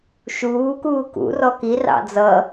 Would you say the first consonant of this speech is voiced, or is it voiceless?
voiceless